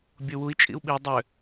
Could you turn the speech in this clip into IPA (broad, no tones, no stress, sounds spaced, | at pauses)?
bʲ o w u i̯ t͡ʃʼ ḭ u̯ ɓ i dˤ ø